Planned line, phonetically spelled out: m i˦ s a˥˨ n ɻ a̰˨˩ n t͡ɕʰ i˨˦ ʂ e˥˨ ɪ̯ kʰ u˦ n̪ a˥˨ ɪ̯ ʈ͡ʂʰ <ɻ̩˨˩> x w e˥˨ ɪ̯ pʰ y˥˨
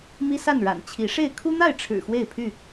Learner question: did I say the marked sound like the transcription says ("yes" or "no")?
yes